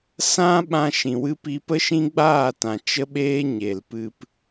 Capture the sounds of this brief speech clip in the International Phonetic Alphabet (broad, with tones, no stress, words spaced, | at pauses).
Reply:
sã˦ ɓã˧ʃĩ˨wɨ˧pi˧ pə˦ʃĩ˦ɡ͡baː˦˨tã˨ t͡ʃə˦ɓeː˦ ɲe˨lpɨ˧p